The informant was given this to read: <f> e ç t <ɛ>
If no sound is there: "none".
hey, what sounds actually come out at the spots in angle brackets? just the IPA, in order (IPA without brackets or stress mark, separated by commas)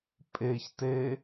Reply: pʼ, e